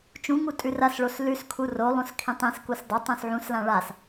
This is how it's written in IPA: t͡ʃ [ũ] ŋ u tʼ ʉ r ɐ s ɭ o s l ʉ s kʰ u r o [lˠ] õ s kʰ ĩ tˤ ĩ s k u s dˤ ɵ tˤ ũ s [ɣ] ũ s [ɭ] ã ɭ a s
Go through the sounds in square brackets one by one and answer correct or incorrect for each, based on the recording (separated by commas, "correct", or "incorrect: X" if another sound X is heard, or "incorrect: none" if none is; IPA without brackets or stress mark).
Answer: correct, correct, incorrect: ʕ, incorrect: l